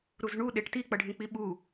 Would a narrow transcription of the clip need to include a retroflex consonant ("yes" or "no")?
yes